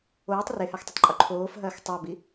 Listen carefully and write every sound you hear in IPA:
oː tˤ r e h a x tˤ ɐ tˤ ǃʼ u ǃʰ oː f ɦ ɐː x tˤ a b i

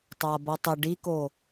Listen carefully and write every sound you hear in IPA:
tˤ a b ʌ tˤ ə ɖ i k o

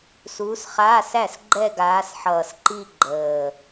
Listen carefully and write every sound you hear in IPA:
s uː˨˦ s χ aː˧˥˧ s æ˥˩ s ɡ͡ǃ ɛ˥˧ ɡ aː˨˦ s ħ ʌː˨˩ s ǃ i˥˧ ɡ͡ǃ əː˨˩

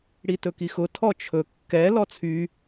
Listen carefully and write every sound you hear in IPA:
ɽ i t ɵ k i x ʊ tʰ ɔ t͡ʃʰ ɵ kː ɛ l ɔ t͡sʰ y

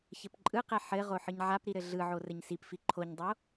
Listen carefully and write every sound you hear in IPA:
ç ɘ p ǃʼ ɯ q ɛ ħ ɘ ʁ o ħ ɯ ɲ ʕ a p ɾ i ɾ ɘ ɮ ɯ ʕ o r ɘ ɲ s i p f i ǃʰ o ɲ dˤ o

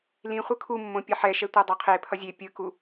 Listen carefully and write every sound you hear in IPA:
l ĩ χʷ ɯ kʰ u mː õ pʲ ʌ ħ ɛ ʃ ɛ tʷ a dˤ a qʰ e pʰ ʌ zʲ e pʲ ɯ k u

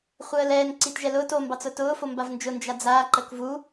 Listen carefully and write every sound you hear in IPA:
χʷ əː l ɛː n ǀ i t ʒ ɛ l ʊː t o m b ɑ t͡s ʊː t ʊː f o m b a v n d͡ʒ ʊ n d͡ʒ a d͡z aː ǃ ə k v u

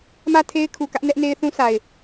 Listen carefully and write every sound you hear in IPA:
m ä˦˨ tʰ e˦ ɪ̯ kʰ u˨ k ä˦ ʔ n ɛ˦ ʔ n e˦ ɪ̯ θ ũ˦ s a˨ ɪ̯

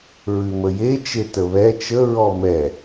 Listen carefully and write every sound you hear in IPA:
ɹ ʉ m ə j e t͡ʃ e t ə β ɛ t͡ʃ ə ɹ ɔ m ɛ

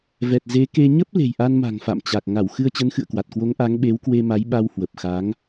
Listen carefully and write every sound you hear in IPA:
v ɛ˨˩ t̚ z e˨˦ k e˧ ɲ ə˦˥ p̚ l e̤˨˩ j ʔ a˧ n m a̤˨˩ ŋ f a̰˧˨ m t͡ɕ a˨˩ k̚ ŋ a˧˩ w x ɨ˧ ə̯ t͡ɕ ə˨˦ n x ɨ̰˧˨ ə̯ k w a˨˩ t̚ k w o˨˦ ŋ ʔ a˨˦ ŋ ɓ e˨˦ w k w e˧ m a˨˦ j ɓ a˧ w h w ə˨˩ p̚ x a˨˦ ŋ

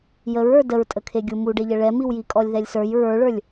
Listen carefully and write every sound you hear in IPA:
j ə ɹ ə˞ d ə ɹ tʼ ə kʰ e ɡʲ u m u ɖ e ʎ ə ɭ ɛ m i w j i kʼ ɔ lʲ ð ɛ lʲ s ə˞ j ɹ ə˞ ɭ ə˞ lʲ

